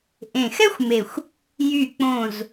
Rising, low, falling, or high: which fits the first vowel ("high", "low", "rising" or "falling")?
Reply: low